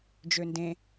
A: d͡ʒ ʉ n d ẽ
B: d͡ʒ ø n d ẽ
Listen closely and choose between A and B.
B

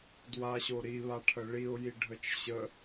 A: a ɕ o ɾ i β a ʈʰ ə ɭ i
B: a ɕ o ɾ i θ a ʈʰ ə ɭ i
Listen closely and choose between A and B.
A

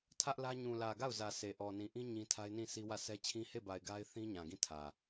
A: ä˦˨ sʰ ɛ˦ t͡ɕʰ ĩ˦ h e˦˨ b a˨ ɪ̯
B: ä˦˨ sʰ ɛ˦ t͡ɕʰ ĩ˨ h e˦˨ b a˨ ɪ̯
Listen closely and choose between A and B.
A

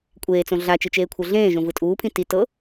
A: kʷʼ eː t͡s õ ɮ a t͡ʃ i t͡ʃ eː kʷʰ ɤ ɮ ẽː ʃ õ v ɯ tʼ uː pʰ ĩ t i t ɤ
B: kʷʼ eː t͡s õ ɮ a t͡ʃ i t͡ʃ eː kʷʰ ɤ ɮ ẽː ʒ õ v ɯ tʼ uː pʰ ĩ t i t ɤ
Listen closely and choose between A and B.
B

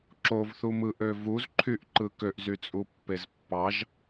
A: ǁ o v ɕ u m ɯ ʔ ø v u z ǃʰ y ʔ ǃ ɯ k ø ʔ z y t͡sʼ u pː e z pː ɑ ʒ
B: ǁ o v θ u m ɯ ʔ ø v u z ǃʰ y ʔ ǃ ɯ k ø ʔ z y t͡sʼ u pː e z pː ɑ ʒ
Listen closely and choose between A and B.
B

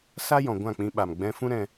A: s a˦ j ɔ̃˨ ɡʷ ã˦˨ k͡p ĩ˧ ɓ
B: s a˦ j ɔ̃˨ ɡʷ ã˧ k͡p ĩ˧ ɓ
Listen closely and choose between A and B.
A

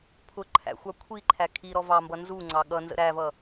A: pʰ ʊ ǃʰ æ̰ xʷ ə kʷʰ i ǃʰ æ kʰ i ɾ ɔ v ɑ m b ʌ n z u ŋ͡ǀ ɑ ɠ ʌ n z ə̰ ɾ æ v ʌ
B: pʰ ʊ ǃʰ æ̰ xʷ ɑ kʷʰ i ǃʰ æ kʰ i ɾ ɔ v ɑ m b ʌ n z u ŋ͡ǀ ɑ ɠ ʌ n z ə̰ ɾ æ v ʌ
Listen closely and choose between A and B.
B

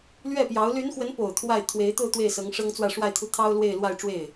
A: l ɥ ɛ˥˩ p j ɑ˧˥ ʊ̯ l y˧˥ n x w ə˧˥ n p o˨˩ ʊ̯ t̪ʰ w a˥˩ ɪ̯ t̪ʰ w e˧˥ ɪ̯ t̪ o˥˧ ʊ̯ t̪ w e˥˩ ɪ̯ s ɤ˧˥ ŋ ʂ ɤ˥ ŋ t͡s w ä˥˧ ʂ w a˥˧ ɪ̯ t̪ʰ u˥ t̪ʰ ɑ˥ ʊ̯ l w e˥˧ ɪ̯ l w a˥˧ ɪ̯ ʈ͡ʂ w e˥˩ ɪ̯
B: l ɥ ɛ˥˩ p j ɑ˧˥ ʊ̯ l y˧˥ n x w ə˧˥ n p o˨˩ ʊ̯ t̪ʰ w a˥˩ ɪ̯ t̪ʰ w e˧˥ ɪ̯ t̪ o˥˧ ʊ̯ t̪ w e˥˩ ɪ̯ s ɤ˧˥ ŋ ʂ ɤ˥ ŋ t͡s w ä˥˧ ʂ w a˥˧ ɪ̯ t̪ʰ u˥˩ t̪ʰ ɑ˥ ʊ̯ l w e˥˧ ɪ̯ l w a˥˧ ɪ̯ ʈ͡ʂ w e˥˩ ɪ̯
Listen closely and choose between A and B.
B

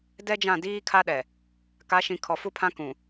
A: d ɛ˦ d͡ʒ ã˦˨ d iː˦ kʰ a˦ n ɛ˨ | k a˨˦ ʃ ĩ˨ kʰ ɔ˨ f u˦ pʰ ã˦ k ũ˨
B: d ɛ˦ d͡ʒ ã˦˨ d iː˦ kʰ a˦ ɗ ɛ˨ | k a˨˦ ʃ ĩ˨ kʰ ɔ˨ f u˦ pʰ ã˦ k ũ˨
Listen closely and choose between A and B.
B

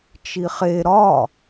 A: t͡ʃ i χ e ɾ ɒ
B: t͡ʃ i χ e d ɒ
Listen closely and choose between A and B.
A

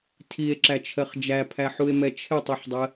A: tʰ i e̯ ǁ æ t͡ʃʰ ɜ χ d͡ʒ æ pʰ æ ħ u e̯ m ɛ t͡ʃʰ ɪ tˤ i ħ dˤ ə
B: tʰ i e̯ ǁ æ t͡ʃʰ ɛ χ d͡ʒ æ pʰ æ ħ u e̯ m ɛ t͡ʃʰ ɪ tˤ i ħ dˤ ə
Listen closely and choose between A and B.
A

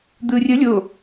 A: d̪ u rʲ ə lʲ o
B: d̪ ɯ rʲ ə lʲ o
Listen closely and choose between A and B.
B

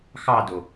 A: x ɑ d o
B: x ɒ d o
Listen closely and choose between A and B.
A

